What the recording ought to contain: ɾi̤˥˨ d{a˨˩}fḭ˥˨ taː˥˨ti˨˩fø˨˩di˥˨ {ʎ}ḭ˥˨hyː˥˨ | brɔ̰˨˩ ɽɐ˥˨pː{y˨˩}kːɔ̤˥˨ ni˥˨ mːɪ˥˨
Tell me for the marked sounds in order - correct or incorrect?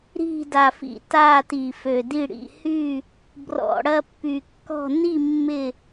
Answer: correct, incorrect: ɽ, correct

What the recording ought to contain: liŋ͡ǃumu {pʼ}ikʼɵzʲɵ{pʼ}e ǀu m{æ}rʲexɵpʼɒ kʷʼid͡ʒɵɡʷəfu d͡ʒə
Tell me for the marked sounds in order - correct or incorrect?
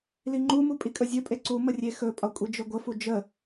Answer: correct, correct, incorrect: ə

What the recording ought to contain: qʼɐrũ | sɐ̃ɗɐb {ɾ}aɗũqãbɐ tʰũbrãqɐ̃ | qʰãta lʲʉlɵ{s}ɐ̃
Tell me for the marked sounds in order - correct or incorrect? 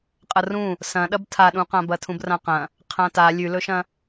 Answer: incorrect: tʰ, incorrect: ʃ

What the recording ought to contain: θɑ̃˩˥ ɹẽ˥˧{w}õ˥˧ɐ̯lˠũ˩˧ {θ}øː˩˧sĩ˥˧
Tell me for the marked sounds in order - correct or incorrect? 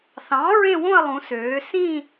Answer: correct, incorrect: s

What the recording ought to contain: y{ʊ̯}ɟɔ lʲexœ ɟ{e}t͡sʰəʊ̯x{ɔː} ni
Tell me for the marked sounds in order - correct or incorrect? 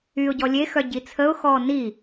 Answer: correct, incorrect: i, correct

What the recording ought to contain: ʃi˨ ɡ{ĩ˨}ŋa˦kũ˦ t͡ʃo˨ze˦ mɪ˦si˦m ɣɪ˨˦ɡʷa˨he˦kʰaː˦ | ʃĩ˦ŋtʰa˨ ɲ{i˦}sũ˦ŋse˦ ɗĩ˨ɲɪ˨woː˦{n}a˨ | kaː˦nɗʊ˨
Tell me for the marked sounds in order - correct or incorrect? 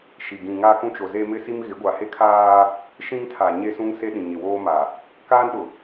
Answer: correct, incorrect: e˦, incorrect: m

